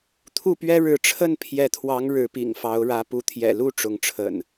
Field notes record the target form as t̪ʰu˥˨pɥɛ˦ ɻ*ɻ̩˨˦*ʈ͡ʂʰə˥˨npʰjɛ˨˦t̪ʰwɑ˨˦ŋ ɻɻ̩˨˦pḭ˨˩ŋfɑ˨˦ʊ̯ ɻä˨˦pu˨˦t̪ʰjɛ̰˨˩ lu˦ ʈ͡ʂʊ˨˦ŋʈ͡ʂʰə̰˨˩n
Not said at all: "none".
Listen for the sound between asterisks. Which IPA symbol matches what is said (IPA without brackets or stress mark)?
ɻ̩˨˦